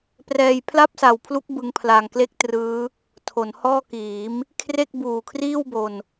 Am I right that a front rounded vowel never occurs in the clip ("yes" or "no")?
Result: yes